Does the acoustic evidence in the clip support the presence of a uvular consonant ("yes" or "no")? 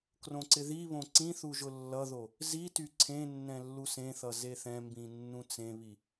no